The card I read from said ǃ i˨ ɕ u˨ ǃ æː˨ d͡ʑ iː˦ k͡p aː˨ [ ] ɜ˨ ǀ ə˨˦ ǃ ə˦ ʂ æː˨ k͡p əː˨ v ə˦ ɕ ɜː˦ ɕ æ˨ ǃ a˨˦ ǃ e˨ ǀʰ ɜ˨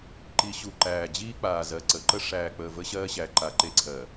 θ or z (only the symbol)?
z